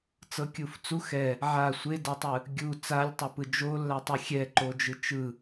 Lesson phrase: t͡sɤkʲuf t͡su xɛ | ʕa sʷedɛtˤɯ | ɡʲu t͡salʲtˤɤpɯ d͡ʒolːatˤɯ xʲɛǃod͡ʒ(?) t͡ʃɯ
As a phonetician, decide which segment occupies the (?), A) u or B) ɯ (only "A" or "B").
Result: B